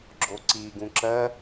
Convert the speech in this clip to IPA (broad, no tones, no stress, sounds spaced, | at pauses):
ɡ͡ǁ o ǀ i ɡ ũ ǁ ɜ